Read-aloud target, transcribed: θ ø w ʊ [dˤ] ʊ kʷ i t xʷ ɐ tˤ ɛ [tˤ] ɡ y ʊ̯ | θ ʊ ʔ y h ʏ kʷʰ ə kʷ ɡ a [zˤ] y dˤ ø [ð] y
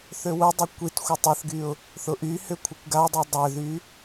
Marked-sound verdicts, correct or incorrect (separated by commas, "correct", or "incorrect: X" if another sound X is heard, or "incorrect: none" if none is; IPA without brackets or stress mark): correct, incorrect: θ, incorrect: dˤ, correct